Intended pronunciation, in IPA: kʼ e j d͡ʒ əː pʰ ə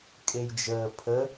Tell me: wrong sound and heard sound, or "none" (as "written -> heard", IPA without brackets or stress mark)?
none